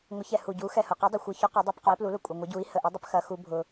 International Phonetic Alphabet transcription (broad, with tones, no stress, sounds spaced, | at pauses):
ŋʷ ə˨˥ ç ɛ˨˩ h u˨˩ ɟ u˨˥ x ɛ˨˩ h ʊ˨˩ q u˨˥ dˤ ʊ˨˩ xʷ ə˨˥ ç ʊ˨˥ q ɐ˨˥ dˤ ɛ˨˥ p q ʊ˨˥ i̯ p l u˨˥ l ʊ˨˩ kʷʼ ə˨˩ ŋʷ ə˨˥ ɟ u˨˥ i̯ h ə˨˩ ʔ u˨˥ dˤ ə˨˥ p x ɐ˨˥ x u˨˥ bʱ ʊ˨˩